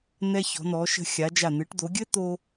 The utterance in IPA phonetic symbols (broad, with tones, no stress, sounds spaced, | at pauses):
n̪ ɛ˧ ç ɔ̤˩˧ n̪ ɔ˩˧ ʃ ə̤˧ xʲ a˩˧ d͡ʒ a˧˩ n̪ ɨ˩˧ ʈ d̪ o˩˧ ɡʲ ɘ˥ t̪ o˥